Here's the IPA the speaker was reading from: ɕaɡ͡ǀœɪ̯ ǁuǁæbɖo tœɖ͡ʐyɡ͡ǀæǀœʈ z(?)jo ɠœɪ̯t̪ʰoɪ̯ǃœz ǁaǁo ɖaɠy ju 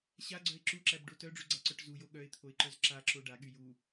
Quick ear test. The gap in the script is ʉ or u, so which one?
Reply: u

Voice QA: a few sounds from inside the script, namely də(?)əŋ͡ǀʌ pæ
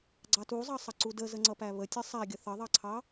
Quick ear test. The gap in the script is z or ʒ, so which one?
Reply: z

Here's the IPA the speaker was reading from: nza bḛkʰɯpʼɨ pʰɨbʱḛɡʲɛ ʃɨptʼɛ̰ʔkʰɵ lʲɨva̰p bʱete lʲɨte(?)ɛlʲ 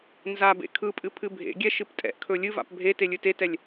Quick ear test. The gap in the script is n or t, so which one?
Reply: t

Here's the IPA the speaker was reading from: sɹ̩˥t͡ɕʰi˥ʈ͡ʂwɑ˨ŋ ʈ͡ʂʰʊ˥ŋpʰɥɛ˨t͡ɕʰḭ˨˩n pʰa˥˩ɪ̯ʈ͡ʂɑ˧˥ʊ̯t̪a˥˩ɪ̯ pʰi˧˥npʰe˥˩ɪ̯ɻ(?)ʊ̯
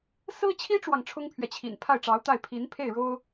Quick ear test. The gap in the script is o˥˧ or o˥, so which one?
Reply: o˥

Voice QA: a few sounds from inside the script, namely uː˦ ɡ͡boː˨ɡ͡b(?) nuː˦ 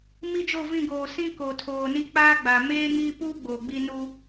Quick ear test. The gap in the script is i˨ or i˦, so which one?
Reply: i˦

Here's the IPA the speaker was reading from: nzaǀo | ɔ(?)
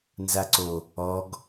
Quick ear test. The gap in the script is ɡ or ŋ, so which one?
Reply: ɡ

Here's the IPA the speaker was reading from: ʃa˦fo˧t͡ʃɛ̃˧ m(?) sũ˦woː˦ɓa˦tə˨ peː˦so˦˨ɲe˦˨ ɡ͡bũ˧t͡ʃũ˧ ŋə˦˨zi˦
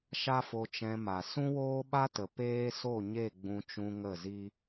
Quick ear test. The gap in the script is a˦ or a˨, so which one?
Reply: a˨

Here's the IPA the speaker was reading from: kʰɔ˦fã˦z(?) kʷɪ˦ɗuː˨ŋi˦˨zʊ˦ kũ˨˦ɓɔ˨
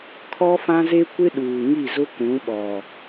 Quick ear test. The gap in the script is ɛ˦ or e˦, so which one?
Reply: e˦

